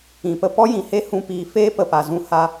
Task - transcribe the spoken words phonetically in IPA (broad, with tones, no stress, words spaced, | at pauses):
ĩ˨pə˦ pɔ˦jĩ˨he˦ hũ˦piː˧ feː˦pə˨pa˨zũ˧ ha˧